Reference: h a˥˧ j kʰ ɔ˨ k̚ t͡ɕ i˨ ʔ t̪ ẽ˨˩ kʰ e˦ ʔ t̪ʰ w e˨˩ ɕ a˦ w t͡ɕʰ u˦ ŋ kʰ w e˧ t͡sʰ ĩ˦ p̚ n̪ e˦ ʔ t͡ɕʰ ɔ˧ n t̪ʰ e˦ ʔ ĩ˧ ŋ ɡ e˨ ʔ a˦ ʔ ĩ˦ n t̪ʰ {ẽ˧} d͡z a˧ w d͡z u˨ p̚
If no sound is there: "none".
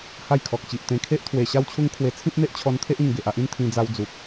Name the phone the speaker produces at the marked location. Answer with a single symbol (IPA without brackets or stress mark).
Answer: ĩ˧